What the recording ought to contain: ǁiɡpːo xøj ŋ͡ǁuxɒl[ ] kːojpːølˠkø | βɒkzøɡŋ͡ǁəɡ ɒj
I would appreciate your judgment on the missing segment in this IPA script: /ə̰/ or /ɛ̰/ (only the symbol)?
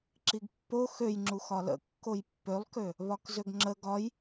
ə̰